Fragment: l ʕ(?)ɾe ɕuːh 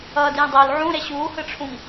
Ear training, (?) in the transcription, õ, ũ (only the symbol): ũ